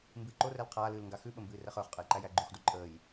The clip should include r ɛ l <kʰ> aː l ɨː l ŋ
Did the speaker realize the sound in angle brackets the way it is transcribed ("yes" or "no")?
no